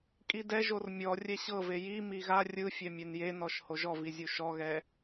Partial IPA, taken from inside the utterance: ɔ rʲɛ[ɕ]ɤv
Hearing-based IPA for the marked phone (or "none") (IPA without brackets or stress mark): ɕ